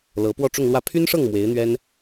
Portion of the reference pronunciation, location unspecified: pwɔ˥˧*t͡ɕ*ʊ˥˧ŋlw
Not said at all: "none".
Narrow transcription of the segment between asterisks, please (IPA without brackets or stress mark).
ʈ͡ʂ